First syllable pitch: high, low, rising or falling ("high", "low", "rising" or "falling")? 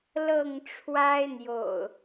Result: falling